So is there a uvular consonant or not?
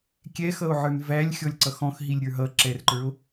no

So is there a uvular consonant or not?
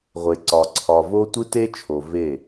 yes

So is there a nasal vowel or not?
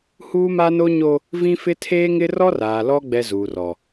yes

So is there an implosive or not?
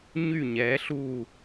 no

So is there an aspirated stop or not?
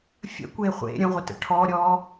yes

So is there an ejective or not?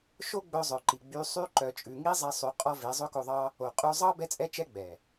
yes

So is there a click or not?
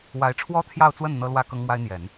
no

